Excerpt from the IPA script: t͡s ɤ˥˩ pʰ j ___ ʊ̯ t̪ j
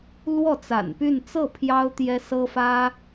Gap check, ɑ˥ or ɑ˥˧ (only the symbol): ɑ˥